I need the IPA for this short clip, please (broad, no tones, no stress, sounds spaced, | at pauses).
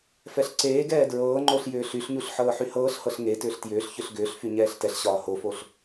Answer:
f ɛ ɬ ǀ eː ɡ ɛː d ɹ ɤː ŋ͡ǃ o ɬ j ʏː ɬ y ɬ ɲ u ɬ ħ ɤː ħ y h ɤː ɬ h ɤ ɬ ŋ e t ʏː ɬ t j ʏː ɬ ç ʏ ɬ ɡ ʏː ɬ f y ɲ ɛː ɬ t ɛ ɬ ɕ ɒː h o f o ɬ